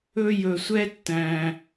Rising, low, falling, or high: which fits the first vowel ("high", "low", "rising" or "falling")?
high